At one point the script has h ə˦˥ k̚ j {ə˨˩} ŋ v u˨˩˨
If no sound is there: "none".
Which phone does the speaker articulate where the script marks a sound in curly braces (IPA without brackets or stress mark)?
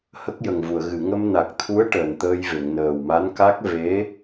ə˨˩